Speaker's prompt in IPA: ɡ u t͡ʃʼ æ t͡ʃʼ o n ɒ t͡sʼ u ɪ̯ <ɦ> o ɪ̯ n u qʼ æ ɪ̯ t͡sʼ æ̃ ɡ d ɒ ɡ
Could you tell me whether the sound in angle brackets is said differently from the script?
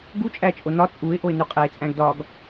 yes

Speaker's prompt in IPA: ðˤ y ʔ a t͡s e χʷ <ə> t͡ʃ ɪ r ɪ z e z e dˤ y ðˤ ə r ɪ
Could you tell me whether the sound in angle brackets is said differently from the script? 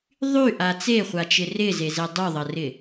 yes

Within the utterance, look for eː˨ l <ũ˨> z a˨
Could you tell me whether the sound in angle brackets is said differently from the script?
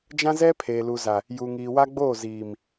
yes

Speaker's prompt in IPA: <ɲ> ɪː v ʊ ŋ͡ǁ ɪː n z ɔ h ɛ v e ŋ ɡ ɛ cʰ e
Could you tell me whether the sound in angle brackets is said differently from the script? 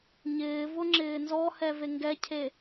no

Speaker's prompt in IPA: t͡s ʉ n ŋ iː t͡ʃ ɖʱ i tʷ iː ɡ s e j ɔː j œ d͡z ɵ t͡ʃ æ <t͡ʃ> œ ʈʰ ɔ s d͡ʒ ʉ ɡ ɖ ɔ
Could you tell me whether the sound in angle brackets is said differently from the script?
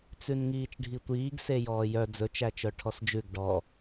no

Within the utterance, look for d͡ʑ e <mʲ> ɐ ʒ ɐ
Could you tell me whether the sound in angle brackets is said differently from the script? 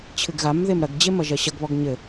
yes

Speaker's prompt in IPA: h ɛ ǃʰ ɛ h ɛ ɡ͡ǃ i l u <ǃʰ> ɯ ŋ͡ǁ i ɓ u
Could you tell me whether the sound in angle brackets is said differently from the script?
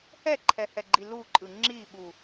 yes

